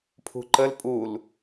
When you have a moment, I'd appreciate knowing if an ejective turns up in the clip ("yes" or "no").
yes